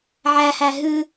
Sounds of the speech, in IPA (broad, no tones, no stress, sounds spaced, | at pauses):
ʕ æ h æ ɦ ʉ